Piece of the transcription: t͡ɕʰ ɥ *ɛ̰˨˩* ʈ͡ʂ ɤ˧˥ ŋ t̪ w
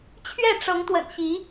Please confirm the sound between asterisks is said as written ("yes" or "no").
no